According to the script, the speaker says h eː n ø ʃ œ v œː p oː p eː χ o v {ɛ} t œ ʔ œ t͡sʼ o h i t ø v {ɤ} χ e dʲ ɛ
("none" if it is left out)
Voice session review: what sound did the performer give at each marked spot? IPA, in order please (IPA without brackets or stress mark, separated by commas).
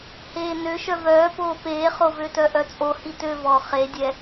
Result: ø, ɔ